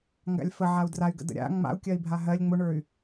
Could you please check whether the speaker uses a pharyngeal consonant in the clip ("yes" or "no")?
yes